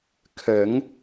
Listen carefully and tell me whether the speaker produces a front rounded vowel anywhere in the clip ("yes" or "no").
no